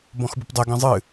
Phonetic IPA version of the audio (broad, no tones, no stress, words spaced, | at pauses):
bɔ̃xbupdˤe ɡɛ̃zˤɨ